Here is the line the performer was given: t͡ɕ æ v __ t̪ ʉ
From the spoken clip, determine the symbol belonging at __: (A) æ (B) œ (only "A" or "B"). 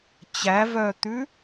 B